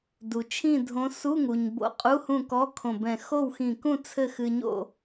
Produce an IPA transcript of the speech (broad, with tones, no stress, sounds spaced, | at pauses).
d u˩ t͡ʃʰ ĩ˥˨ dʱ õ˧˥ s u˧˥˧ ŋ u˩ ɲ b o̰˧˥ qʼ u˧˥˧ h ũ˥˨ k ɔ˧˥˧ kʰ õ˧˩ b ɛ̃˧˩ x o˥˨ w x ĩ˧˩ k ũ˥˨ t͡sʰ ɘ˥˨ x ɨ˧ ɲ o̰˥˨